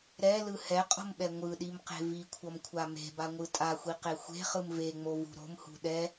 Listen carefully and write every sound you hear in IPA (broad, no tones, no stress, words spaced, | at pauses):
ɾɛlɯ hɛqʼo̤mɓɛ ŋʷɯɗimqe̤ vikʷʰʌmkʷʰa me̤baŋʷɯ tʼaxʷiqe xʷe̤χɯm veŋ͡movṳ ɾo̤mhṳ ɗɛ